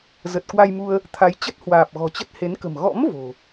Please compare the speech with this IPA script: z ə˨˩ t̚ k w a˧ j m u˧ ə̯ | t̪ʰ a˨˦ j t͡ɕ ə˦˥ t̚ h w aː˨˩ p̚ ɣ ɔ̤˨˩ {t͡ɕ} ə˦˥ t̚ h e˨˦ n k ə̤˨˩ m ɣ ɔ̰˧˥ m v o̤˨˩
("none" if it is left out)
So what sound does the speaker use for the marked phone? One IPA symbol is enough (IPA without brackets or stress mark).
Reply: t͡ɕ